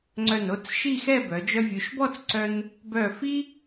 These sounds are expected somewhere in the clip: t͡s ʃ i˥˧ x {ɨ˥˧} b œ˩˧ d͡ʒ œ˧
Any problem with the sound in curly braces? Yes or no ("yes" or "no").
yes